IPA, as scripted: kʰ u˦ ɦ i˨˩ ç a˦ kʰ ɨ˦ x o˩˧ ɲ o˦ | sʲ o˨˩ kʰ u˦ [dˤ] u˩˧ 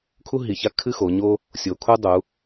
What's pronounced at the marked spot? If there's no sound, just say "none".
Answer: dˤ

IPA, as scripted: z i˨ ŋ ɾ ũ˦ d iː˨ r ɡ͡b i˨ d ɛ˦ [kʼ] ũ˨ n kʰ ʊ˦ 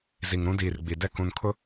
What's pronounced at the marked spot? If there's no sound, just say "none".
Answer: k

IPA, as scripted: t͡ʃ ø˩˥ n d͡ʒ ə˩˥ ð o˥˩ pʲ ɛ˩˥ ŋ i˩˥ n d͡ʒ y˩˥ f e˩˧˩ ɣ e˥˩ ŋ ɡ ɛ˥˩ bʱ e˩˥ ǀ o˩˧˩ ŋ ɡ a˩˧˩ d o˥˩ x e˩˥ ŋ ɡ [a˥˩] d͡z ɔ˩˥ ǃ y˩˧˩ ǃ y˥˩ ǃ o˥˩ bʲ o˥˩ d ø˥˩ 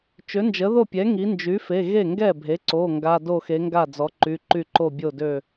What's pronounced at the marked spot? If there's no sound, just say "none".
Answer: a˥˩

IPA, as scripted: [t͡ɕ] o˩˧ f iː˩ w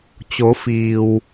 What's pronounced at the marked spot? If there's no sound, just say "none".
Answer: t͡ɕ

